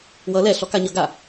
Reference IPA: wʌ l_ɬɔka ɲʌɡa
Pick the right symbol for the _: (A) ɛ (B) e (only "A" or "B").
A